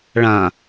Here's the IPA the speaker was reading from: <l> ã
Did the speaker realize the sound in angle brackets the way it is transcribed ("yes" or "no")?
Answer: no